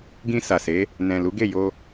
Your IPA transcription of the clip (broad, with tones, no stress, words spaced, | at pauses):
ɡĩ˧sa˨se˨˦ | nɛ̃˨lu˨˦ɡe˦˨jo˧